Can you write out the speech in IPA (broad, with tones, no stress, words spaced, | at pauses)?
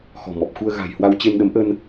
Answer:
xɔ̤˨˩mɔ˨˩p̚xu˧ə̯ ɣa̤˨˩jhwa˧w t͡ɕe˧nɗə˨˦mʔə˧n